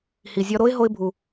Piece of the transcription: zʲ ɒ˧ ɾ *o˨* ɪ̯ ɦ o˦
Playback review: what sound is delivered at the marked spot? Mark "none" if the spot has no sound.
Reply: o˦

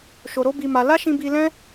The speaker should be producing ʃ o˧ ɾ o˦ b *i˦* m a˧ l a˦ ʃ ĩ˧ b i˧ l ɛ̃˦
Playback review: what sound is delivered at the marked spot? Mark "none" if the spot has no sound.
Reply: i˧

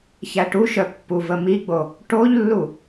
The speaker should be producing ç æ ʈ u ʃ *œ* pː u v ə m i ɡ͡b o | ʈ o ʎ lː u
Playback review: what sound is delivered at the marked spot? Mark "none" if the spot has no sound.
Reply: œ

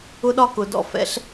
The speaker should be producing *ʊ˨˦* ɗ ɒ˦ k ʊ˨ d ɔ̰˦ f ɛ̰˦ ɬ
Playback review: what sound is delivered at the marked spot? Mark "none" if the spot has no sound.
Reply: ʊ˦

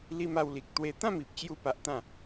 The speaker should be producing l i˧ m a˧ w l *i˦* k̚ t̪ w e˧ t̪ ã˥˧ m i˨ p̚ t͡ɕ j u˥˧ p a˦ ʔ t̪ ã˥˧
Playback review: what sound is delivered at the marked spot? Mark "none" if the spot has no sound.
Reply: i˨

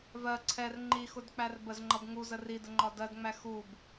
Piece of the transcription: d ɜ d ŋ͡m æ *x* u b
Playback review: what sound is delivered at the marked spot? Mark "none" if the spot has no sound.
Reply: x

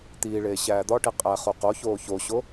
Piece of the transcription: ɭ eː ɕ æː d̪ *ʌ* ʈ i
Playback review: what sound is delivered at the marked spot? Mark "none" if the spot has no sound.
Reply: ɒ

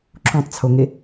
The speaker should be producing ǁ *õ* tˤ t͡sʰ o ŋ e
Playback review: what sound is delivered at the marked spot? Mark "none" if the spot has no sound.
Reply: õ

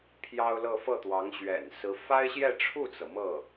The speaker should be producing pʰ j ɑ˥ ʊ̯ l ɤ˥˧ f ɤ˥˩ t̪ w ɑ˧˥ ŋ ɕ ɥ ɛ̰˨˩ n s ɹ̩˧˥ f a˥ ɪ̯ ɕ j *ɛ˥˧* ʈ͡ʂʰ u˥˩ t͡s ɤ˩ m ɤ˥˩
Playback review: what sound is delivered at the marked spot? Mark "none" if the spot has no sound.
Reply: ɛ˥˧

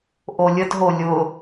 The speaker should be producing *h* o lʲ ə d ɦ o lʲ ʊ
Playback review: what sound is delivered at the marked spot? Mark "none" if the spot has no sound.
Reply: ʔ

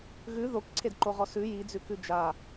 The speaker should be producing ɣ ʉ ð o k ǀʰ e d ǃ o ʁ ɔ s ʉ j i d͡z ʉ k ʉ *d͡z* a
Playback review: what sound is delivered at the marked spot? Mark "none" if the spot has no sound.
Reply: d͡ʒ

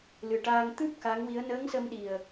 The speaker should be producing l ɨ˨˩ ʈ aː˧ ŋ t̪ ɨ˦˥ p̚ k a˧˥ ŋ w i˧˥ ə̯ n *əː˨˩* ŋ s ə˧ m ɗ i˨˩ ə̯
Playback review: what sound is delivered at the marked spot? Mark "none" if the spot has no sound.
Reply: əː˧˥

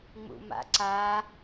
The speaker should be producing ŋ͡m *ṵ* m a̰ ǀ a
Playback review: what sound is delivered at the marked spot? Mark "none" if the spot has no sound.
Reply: ṵ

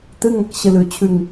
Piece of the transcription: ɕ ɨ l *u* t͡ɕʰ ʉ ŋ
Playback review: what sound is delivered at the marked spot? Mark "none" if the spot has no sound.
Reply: ʉ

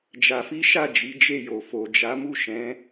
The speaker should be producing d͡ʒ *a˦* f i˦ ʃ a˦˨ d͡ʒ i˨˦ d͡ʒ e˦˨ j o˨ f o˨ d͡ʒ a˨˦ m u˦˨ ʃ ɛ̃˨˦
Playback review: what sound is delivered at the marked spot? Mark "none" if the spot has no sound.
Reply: a˧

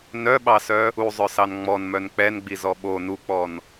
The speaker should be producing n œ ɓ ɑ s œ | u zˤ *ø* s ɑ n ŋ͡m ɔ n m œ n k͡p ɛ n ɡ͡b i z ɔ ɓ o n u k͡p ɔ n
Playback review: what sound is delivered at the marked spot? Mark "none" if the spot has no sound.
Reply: œ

